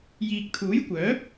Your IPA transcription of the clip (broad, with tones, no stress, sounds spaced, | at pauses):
j iː˨ k̚ t̪ʰ uː˨˥ j kʷ œː˨˥ p̚